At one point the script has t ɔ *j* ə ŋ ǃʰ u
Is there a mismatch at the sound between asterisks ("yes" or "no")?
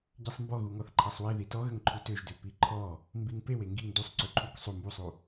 yes